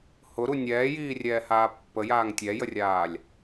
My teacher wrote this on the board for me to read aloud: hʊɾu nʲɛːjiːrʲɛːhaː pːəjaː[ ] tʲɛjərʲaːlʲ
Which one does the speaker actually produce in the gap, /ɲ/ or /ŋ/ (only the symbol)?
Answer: ŋ